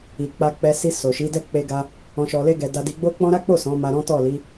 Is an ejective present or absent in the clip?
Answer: absent